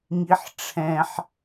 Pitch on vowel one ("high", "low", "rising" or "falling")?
high